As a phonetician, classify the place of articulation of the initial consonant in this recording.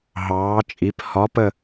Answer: glottal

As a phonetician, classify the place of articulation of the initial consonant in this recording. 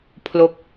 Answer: labial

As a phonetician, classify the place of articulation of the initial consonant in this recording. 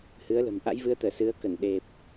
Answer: glottal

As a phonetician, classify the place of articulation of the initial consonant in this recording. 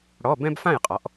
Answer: retroflex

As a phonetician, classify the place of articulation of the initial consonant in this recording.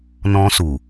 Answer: alveolar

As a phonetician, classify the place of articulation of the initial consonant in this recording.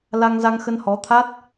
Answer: alveolar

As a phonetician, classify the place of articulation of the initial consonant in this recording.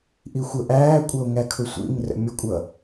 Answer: glottal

